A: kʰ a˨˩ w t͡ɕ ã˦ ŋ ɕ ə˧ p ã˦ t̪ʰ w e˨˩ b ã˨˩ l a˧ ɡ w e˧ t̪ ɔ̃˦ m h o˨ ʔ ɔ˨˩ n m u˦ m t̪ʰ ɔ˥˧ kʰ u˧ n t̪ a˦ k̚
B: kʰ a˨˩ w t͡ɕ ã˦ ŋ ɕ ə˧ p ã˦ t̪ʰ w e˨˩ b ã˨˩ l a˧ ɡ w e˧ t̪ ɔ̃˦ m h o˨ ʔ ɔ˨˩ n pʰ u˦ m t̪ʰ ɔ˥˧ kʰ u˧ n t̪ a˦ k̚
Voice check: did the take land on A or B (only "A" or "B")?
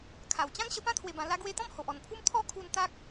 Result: B